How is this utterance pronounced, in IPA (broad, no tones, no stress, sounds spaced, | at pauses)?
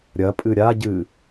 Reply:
ɾʲ ɐ pʼ ɨ ɾʲ a ɟ ɨ